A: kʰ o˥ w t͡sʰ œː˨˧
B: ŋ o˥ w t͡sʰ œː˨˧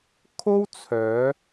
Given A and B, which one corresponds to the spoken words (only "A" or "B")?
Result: A